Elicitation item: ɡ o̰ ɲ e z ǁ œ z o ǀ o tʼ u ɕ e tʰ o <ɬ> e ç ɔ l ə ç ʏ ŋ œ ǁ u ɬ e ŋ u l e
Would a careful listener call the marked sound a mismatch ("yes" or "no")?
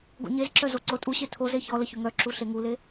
yes